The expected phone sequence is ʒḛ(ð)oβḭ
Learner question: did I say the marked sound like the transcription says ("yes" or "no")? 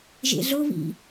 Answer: no